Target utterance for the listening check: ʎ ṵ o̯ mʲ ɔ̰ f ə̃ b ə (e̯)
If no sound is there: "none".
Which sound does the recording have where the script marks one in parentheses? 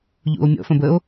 o̯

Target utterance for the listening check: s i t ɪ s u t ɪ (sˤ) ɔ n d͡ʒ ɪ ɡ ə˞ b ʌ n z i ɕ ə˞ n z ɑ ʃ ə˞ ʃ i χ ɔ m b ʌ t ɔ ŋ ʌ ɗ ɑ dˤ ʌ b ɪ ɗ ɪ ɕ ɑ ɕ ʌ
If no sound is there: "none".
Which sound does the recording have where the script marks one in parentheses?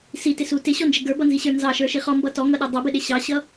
ɕ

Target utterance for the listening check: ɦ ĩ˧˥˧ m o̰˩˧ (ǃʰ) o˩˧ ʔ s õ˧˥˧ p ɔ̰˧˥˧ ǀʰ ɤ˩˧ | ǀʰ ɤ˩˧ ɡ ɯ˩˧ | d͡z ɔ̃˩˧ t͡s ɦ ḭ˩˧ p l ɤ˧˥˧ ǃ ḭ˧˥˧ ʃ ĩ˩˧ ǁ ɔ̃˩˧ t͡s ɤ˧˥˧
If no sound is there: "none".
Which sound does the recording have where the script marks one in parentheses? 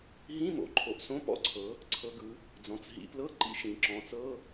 ǃʰ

